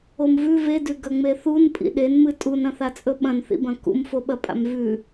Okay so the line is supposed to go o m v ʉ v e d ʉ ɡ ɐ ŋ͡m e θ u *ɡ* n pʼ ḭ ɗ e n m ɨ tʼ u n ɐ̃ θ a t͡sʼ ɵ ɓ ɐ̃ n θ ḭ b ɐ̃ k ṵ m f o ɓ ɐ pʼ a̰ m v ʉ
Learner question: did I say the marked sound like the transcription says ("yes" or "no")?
no